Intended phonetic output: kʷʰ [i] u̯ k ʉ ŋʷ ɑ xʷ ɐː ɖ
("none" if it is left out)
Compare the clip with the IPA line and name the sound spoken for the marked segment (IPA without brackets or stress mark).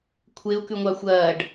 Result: e